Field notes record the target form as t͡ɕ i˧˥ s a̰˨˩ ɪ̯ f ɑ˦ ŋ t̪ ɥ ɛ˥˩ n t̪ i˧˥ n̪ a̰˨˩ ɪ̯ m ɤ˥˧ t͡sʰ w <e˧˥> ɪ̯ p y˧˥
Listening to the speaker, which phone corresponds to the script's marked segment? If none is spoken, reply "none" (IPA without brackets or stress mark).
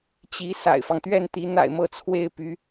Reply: e˥˩